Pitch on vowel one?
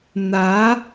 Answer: rising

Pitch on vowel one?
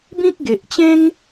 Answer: high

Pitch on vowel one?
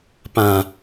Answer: low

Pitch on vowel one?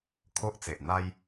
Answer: high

